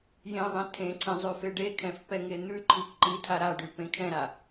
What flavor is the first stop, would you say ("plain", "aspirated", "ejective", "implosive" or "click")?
aspirated